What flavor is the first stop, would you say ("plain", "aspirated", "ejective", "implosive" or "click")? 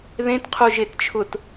plain